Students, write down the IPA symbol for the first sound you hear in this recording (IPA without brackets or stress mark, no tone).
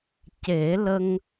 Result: c